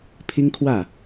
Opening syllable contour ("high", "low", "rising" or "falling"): high